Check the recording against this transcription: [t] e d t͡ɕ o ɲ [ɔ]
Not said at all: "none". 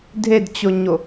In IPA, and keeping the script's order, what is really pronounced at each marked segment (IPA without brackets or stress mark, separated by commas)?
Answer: dʱ, o